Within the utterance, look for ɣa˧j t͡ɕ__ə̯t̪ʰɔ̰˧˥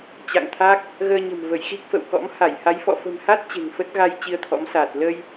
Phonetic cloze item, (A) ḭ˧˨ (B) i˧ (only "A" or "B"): B